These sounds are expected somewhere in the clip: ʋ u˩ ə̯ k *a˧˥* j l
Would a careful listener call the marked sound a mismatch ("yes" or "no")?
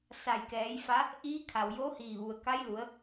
no